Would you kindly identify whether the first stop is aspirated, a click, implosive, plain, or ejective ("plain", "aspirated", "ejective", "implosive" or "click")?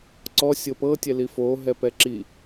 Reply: click